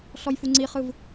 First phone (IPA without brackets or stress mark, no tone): ɬ